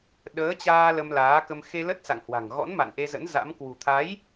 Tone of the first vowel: rising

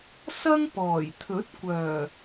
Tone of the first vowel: high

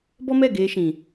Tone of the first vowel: high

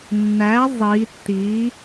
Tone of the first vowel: rising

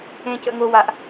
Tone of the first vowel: high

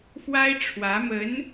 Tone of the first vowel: high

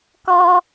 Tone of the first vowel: high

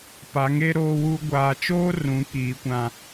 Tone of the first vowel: rising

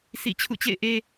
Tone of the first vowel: falling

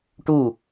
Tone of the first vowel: falling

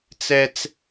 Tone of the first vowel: high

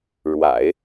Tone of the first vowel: low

